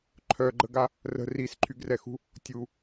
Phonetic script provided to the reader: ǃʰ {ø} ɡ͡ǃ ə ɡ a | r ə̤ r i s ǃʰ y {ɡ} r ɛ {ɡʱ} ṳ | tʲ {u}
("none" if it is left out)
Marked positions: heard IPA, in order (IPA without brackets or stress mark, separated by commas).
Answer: œ, ɡ, x, u